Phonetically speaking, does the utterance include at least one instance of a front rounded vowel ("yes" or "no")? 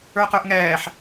no